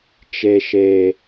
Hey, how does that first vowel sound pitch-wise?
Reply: low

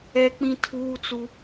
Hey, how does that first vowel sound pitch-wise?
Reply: high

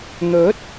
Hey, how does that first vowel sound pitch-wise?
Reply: rising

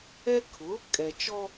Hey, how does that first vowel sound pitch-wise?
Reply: high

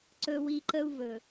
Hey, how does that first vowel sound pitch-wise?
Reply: high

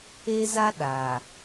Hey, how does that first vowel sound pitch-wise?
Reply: high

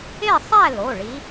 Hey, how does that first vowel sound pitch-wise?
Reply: falling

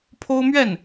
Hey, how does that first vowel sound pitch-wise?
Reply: high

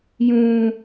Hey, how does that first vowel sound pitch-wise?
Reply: high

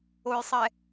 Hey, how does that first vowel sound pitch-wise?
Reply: low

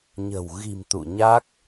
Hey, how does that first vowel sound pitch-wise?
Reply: low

